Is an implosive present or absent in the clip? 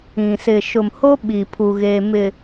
present